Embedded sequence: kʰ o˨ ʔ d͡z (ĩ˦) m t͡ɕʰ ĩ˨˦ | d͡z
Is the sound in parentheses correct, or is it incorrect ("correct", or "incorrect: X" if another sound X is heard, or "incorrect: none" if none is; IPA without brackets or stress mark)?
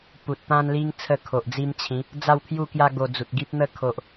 incorrect: i˦